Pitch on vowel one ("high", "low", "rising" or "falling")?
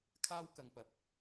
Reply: high